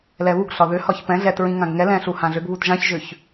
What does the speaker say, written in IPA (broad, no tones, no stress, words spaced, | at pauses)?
lɛβuɡɬɒ ðʏhɒç pɛ̃ ɮɛt ɹĩŋãɡŋɛlɛ̃ ɬuhãɮʏɡβut ʒãçʒʏç